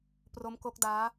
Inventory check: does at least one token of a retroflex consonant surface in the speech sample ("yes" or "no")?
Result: no